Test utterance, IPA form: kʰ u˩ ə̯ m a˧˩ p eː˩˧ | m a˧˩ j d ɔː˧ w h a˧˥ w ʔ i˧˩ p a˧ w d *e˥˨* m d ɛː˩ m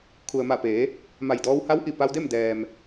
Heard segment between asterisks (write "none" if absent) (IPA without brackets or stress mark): e˥˨